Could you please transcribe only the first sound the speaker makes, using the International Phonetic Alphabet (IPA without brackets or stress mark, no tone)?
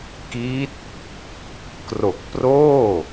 k